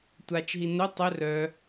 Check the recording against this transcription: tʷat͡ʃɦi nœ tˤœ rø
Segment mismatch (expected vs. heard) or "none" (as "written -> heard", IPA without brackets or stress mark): ø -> œ